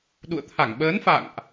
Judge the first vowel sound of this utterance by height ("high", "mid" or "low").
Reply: high